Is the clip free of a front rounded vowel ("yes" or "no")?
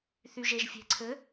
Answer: no